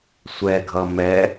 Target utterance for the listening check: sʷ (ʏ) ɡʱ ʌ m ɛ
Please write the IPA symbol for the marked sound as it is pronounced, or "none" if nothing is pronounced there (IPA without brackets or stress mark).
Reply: ɛ